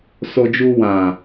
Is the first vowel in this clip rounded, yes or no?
yes